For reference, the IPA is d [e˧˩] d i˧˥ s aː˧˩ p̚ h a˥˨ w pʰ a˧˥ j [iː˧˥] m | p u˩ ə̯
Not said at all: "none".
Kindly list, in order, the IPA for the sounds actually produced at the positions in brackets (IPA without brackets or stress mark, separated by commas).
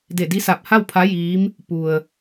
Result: e˧˩, iː˧˥